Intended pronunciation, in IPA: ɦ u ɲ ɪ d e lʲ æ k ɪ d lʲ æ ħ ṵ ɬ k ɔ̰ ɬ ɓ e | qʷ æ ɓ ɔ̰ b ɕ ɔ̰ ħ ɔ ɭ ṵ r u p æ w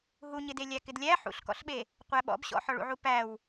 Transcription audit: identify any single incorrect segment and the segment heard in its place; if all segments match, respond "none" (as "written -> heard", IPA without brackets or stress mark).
r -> ʕ